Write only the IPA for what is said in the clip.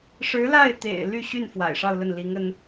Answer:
ʂɻ̩˧˥la˥˩ɪ̯t̪ḛ˨˩ɪ̯ ly˥˧ɕy˥˩n fwa̰˨˩ɪ̯ʂɑ˥˧ʊ̯lə˥˩n li˧˥ŋə˥n

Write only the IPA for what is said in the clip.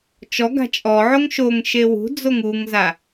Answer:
t͡ʃɔɡa̤ t͡ʃʼɔʕoŋ ʃoŋ ʃewṳd͡zoŋ uŋza

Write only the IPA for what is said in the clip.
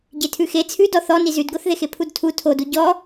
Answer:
ɟetʰʉxe t͡sʰʉdɔ θɔ nizʉdɡoθðex epʰudtʰu tʰodu ɟɔ

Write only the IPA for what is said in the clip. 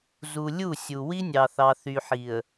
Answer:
zu˨lʲu˦˨ sʲu˨wi˦nʲɑ˨θɑ˨ θy˨ħi˨ə̯

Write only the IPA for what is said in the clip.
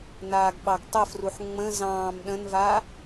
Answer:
naːɡɓɑɡtˤəfruħ ŋ͡mə̃ zɑ̃ːm ɗə̃nva

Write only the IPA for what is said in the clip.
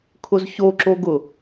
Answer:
kʰʊzçoǁoɡʊ

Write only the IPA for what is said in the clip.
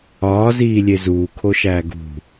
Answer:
ɒːziːlʲe zuːkʰoʃæː ɡṳ

